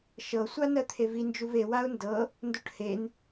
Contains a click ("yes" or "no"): no